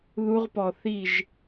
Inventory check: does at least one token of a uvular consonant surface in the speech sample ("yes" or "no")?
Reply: yes